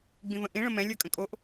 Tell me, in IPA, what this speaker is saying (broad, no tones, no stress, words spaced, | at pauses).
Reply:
ɡ͡bĩvə̃ʔĩ ɭə̃mɛ̃ lʲə˞kʼə̃kʼoʔ